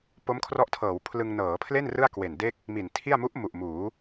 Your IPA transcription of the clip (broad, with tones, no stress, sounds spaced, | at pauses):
p o˦˥ m kʰ r ɔ˦˥ ʔ tʰ ɤː˩˦ w pʰ l ɯ˧ ŋ n ɤː˩˦ pʰ l e˥˩ n r ɯ˥˩ a̯ k w e˨˩ n d e˥˩ k̚ | m i˨˩ n tʰ i˥˩ a̯ m u˦˥ ʔ m u˨˩ ʔ m uː˩˦